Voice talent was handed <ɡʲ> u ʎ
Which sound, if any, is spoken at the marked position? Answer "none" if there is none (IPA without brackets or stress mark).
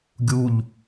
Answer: ɡʲ